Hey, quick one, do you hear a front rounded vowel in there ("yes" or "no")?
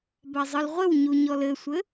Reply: no